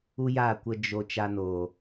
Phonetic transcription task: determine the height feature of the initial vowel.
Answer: high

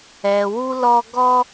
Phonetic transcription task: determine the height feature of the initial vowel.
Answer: mid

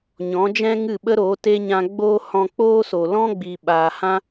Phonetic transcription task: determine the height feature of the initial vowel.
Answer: mid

